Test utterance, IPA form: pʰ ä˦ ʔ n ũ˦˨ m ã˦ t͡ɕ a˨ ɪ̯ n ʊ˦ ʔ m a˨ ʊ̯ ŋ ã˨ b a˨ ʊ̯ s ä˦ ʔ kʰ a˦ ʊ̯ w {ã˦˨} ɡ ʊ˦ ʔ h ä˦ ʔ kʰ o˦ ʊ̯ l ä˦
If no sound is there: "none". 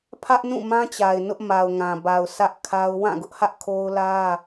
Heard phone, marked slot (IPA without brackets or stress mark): ã˦˨